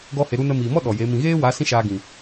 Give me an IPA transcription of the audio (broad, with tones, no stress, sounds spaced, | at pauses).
ɡ ɔ˦ h e˧ ɾ u˧ n ə˧ m iː˨ m ɔ˦ ɗ ɔ˨ j e˨˦ m ĩ˨ ɣ eː˦ w a˨˦ s ĩ˦ ʃ aː˧ ɡ ĩ˨